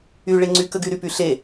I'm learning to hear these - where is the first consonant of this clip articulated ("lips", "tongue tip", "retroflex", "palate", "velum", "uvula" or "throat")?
retroflex